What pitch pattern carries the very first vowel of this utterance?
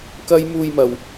high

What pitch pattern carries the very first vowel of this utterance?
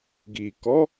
low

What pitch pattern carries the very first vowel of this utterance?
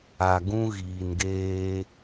low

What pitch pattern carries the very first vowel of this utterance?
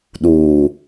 low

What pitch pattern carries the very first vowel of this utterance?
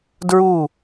falling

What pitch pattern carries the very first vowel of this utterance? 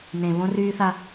low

